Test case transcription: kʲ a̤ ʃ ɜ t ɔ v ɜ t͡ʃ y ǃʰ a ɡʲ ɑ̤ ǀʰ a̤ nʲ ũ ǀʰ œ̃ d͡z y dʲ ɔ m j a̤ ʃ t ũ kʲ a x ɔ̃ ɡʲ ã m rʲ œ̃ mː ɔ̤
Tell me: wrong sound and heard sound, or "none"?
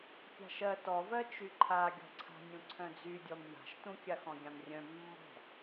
ɑ̤ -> ɔ̤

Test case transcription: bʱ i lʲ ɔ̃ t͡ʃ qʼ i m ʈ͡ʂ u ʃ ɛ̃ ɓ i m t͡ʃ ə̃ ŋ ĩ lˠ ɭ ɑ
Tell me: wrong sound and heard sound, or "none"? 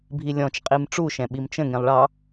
none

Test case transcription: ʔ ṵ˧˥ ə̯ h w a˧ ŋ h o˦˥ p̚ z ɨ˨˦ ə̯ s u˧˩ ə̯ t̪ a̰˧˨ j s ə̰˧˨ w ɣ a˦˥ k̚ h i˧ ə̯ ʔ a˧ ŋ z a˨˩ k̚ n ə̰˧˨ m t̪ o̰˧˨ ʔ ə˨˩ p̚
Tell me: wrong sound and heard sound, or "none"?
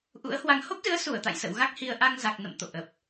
none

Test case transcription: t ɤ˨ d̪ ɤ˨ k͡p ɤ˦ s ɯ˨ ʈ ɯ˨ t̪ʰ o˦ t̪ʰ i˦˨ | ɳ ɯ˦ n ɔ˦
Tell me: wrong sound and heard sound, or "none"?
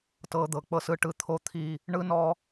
none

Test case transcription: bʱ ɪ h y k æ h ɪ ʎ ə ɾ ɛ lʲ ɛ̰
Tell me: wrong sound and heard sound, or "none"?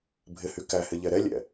ə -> ɛ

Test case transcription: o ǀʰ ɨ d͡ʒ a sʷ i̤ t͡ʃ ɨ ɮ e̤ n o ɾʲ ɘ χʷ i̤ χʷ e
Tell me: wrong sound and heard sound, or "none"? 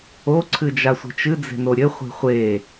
ɮ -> d͡z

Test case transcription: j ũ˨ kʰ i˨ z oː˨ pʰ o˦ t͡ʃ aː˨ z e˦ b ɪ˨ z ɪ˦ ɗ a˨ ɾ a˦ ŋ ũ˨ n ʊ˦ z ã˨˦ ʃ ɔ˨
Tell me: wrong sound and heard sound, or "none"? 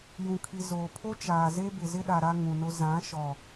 none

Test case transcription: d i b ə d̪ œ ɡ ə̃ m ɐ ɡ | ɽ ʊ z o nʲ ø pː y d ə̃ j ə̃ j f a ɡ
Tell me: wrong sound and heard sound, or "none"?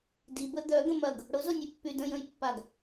f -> pː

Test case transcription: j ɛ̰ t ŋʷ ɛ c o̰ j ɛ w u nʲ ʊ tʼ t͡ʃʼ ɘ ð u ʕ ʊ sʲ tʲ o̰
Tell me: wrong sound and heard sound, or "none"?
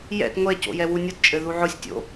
tʼ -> t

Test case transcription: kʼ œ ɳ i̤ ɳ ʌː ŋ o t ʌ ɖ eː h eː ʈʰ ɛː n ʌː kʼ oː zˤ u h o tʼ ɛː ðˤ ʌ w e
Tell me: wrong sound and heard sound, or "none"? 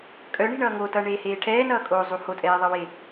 ɖ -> ɳ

